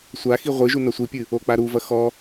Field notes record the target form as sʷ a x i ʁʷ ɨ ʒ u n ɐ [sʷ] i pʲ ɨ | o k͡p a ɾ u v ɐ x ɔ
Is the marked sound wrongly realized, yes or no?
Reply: no